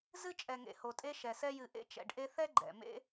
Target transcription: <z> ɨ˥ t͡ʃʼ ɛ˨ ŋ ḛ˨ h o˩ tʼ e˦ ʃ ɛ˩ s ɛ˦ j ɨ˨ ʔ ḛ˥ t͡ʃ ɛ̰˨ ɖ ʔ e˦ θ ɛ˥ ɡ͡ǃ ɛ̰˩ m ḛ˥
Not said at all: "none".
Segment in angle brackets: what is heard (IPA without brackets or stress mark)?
z